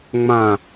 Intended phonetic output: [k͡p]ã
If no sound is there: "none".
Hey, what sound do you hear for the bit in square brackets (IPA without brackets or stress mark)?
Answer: ŋ͡m